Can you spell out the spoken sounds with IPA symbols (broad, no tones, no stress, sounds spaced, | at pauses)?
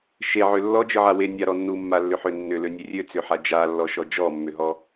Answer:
ʃ e ʕ ø lː ɔ d͡ʒ ɯ ʕ a w e nʲ a ɾ ɔ nː u mː a lː ʏ ħ ø nː ʏ l ø nʲ e rʲ ø t͡s ʏ ħ a d͡ʒ a lː ɔ ʃ ɔ d͡ʒ ɔ mː ʏ ɦ ɔ